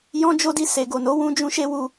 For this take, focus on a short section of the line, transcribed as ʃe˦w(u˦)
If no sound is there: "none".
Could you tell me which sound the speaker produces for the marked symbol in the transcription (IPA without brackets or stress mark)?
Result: u˧